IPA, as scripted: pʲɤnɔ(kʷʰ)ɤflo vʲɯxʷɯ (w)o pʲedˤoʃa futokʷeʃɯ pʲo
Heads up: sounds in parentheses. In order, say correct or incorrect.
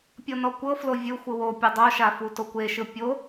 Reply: incorrect: kʷ, correct

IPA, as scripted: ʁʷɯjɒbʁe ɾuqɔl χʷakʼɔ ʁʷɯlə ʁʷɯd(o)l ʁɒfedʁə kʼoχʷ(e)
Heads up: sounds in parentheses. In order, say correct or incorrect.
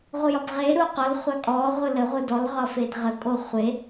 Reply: incorrect: ɔ, correct

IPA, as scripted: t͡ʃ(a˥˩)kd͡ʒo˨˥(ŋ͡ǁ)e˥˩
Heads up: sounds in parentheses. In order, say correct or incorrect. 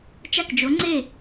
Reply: correct, incorrect: ŋ͡ǀ

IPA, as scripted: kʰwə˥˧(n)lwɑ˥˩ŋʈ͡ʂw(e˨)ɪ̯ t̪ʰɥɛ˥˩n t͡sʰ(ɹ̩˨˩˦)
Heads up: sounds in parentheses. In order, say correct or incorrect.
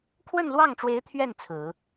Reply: correct, incorrect: e˧˥, correct

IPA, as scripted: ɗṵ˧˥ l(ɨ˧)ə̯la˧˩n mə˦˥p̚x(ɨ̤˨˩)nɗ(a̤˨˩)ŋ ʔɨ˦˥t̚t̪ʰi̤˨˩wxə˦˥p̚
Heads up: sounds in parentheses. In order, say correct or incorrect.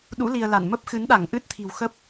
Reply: incorrect: i˧, incorrect: ɨ˨˦, incorrect: a˧˩

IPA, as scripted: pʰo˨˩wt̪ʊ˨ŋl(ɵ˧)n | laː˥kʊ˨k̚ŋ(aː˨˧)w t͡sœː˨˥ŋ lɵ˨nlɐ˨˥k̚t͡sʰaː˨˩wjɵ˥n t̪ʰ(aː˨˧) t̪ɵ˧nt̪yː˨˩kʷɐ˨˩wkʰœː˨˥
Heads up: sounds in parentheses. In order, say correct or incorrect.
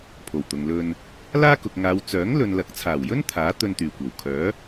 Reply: correct, correct, incorrect: aː˨˥

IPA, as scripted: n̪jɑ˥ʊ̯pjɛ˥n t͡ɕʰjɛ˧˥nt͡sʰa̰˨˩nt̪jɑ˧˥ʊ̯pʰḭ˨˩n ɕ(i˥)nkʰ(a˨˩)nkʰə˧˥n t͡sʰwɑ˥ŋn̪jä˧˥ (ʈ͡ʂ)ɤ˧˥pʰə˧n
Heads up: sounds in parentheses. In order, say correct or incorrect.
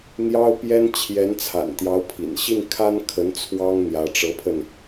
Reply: incorrect: i˥˩, incorrect: a˥, correct

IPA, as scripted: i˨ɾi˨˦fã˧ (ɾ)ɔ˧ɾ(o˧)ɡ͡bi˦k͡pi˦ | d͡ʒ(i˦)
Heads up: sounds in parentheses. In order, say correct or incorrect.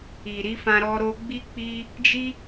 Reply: correct, correct, correct

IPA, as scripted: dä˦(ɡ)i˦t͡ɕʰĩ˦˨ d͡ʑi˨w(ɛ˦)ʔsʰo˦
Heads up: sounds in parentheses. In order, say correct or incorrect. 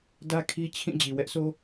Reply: incorrect: kʰ, correct

